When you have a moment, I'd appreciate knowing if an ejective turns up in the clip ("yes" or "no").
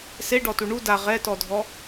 no